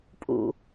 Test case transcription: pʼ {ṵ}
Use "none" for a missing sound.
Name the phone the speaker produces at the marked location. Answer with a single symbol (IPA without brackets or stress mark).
ṵ